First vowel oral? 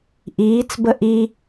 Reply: yes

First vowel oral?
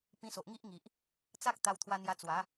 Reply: no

